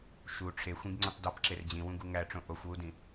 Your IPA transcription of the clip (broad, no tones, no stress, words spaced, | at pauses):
ʃu ʈ͡ʂʰexʷĩɡŋ͡ǀĩtˤ dɒpǁer d͡ʑĩwũɡu ŋæʈ͡ʂõ ʔoxʷwudĩ